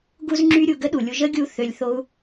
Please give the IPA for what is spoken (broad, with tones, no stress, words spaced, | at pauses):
ɡu˧zŋ͡ǁy˧ɾʲu˨ ɡə˦ɗu˨lʲu˧ ʒə˦ ɡʲu˦θø˧lʲ θo˦u̯